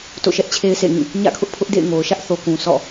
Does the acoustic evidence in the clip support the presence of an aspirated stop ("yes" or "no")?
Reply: yes